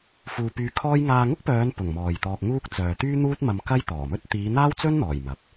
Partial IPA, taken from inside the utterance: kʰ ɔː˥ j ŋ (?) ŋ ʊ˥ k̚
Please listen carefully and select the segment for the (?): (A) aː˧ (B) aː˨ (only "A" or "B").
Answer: A